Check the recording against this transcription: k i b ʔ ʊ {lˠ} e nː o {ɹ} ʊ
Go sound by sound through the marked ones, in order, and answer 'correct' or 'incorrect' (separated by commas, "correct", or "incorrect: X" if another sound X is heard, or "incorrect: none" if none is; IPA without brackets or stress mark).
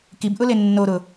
incorrect: l, incorrect: ɾ